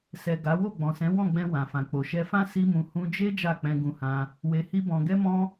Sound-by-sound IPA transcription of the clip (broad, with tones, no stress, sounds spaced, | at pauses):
s ɛ˨ ɡ a˨˦ w o˦˨ ɡ͡b ɔ̃˨ s ɛ̃˨˦ w ɔ̃˦˨ ɡ͡b ɛ̃˧ w ã˨ f ã˨ k͡p o˨ ʃ ɛ˧ f ã˦ s i˦ m ũ˧ h ũ˧ d͡ʒ e˦ d͡ʒ a˦˨ k͡p ɛ̃˧ ɡ ũ˧ h ã˧ | w e˧ h i˦ b ɔ̃˧ ɡ ɛ˦ m ɔ̃˦